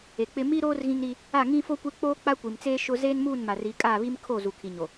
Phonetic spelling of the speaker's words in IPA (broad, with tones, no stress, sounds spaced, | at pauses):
e˨ k͡p ɪ˦ m i˦ ɾ oː˦ r ɣ ĩ˦ ŋ ɾ i˦ | a˦˨ ŋ ĩ˦ f o˦ kʷ e˦ k͡p oː˦ k͡p a˦ kʷ i˨ m t͡s eː˦ ʃ ʊ˦ z eː˦ n m uː˦˨ n m a˨ r i˨˦ kʼ a˦˨ β i˦ m kʰ o˦˨ z u˨ kʰ i˨ ɲ o˨